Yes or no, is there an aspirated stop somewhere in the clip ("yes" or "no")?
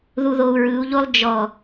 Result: no